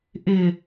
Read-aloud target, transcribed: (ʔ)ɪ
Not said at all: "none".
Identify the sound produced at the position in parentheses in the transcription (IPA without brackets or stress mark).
ʔ